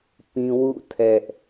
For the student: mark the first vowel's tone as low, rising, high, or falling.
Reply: high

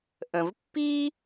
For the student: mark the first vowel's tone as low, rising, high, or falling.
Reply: low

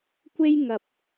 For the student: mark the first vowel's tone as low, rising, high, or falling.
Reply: high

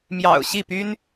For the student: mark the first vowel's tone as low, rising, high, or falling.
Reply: low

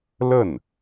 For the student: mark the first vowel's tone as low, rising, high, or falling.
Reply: falling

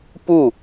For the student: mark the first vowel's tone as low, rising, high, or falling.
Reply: falling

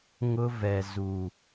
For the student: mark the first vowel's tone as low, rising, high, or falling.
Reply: high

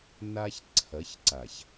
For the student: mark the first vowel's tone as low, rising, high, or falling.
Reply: high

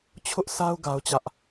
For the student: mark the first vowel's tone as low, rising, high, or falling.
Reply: high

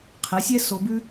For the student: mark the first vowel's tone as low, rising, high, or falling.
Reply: rising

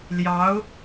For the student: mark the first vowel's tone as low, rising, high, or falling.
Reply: rising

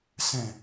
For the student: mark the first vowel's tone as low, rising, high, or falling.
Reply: low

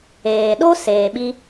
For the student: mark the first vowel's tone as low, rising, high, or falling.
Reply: low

